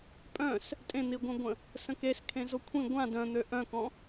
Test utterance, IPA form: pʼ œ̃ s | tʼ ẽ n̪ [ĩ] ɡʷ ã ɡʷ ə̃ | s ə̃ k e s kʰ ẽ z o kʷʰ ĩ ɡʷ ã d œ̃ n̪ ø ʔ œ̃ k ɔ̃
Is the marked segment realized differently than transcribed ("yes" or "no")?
yes